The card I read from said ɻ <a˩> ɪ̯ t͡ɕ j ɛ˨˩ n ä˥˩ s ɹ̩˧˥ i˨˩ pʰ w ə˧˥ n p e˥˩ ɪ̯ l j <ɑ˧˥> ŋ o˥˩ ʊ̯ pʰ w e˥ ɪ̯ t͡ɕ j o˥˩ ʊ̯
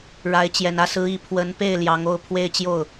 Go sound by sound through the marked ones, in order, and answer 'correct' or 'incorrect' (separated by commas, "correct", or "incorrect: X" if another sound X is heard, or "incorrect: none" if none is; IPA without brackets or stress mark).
incorrect: a˧˥, correct